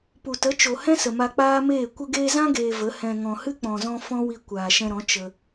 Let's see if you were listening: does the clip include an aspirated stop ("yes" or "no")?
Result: no